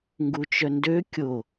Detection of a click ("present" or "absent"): absent